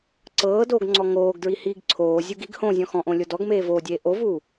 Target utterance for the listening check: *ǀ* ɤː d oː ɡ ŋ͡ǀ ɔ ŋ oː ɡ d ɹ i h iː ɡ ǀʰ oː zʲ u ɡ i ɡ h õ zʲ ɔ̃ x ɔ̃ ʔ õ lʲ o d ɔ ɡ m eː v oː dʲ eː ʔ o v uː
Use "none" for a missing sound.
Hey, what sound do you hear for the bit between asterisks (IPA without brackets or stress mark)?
ǀ